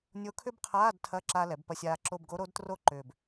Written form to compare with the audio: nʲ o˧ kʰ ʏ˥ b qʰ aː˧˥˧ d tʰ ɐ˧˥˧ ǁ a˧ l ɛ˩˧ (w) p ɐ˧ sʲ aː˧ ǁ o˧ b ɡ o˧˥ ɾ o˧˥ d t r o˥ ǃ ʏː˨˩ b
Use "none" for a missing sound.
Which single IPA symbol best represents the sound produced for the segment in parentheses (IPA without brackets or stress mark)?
b